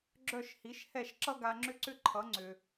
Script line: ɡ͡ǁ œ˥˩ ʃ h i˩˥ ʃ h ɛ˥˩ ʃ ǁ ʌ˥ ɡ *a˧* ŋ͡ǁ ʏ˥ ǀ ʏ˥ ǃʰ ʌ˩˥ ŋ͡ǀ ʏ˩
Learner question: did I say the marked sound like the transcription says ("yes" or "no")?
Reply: yes